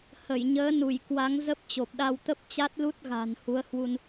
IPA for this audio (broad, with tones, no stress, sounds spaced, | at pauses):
h ə˧˩ j ɲ əː˨˦ n u˧˩ j k w a˨˦ ŋ z ə˦˥ p̚ t͡ɕ o˨˩ p̚ ɗ a˧ w t̪ ə˦˥ p̚ t͡ɕ a˦˥ t̚ l u˦˥ t̚ ɣ a̤˨˩ n h u˨˦ ə̯ h w u˧ n